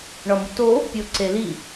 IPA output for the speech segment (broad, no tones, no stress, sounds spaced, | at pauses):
ɳ ɒ m u t o | pʲ o ǀ e l i